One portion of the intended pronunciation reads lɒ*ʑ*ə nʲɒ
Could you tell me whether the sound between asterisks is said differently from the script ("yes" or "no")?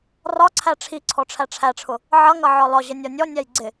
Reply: no